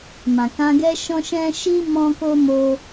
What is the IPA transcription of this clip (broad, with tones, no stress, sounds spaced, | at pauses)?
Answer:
m ã˨ k ã˧ ɡ ɛ˦ ʃ ɔ̃˦ ʃ ɛ̃˦ ʃ i˦ m ɔ̃˦ k o˦ m o˧